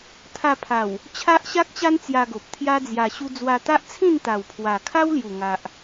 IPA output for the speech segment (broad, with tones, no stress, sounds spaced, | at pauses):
t̪ʰ a˧ pʰ a˨˩ w | t͡ɕʰ a˦ ʔ ɕ a˦ k̚ t͡ɕ a˦ n t͡s j a˧ ɡ o˨ p̚ t̪ʰ j a˦ d͡z j a˧ ɕ u˦ d͡z w a˧ t̪ a˦ ʔ t͡sʰ ĩ˥˧ n t̪ a˨˩ w pʰ w a˨˩ kʰ a˦ w l j u˨˩ ŋ a˨ ʔ